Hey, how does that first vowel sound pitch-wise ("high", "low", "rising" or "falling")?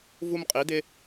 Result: high